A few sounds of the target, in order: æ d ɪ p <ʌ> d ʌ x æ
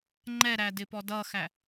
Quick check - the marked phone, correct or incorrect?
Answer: incorrect: ɔ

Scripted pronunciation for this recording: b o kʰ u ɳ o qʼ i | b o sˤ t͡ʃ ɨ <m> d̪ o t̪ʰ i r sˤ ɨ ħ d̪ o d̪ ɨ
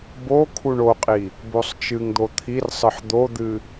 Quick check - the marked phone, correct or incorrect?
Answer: incorrect: ŋ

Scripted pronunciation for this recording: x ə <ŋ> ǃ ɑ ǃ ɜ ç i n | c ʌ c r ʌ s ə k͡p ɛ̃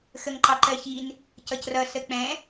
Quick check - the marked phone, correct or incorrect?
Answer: correct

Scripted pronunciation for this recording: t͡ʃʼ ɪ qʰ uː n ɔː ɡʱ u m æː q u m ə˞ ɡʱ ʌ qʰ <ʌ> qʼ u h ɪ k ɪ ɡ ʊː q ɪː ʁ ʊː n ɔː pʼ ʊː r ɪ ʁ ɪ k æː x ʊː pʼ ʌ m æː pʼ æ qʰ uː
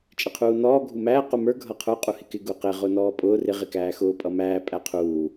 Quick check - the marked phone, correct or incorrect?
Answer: incorrect: ə˞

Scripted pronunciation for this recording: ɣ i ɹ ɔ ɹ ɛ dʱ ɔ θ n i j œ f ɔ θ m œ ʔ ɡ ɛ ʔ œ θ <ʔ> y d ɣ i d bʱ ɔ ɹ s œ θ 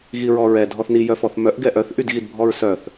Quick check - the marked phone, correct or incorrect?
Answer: correct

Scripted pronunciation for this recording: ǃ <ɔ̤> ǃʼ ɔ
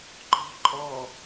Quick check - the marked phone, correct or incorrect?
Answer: correct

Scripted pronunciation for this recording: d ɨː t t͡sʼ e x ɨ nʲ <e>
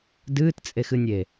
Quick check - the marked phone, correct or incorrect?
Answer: correct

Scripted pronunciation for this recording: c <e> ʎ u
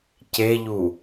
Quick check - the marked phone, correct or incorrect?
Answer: correct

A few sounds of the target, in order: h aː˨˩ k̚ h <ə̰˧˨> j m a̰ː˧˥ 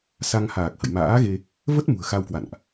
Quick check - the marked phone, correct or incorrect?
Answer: correct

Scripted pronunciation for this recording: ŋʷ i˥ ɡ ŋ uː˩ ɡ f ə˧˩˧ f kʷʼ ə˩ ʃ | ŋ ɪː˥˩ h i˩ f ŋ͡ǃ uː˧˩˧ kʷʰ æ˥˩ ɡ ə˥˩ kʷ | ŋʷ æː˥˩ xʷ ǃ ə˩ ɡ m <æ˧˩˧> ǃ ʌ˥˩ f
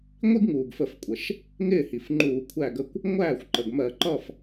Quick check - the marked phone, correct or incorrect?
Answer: incorrect: ɜ˧˩˧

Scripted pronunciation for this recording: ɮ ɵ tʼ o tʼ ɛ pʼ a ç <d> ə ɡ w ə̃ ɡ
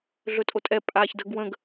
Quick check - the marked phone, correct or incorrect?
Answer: correct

